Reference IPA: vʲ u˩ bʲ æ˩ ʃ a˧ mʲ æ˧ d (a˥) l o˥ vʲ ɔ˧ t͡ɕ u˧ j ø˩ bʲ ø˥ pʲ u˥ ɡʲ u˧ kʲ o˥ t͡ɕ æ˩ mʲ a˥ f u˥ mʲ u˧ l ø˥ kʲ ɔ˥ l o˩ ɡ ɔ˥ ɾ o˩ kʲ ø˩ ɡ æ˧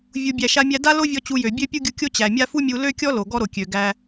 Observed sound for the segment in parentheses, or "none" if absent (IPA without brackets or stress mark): a˥